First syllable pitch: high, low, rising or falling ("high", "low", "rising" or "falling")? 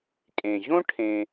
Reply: low